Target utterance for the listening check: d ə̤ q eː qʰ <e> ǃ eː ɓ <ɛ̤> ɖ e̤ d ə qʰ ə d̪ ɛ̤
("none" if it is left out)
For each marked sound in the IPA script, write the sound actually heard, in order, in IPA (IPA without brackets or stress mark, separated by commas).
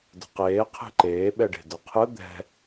e̤, ɛ